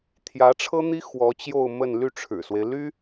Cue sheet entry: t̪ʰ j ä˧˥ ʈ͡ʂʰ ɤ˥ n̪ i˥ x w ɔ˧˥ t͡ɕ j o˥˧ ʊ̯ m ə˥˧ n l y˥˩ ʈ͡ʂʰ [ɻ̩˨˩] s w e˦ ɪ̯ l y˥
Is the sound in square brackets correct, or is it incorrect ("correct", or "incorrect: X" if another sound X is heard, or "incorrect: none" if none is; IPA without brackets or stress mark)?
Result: correct